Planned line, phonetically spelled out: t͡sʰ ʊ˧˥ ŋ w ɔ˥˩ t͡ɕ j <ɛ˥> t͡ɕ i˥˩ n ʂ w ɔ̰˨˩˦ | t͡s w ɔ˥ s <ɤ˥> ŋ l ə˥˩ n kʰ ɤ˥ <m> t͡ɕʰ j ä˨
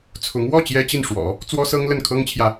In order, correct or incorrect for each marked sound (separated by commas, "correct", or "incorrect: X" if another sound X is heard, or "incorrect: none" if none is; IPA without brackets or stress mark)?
correct, correct, incorrect: ŋ